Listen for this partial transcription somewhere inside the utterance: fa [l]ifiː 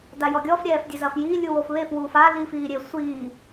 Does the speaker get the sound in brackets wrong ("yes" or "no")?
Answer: no